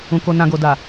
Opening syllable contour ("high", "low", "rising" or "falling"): low